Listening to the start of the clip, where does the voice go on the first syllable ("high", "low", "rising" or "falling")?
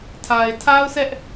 low